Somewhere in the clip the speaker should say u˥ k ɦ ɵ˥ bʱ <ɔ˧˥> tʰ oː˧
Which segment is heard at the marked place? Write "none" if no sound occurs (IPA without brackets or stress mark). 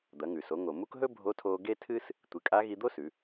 o˧˥